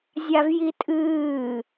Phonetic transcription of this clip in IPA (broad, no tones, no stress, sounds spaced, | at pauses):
zʲ a v j i tʼ ɨː